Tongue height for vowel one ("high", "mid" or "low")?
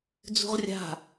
high